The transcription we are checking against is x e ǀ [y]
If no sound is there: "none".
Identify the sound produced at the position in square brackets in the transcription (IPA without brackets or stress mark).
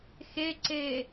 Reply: e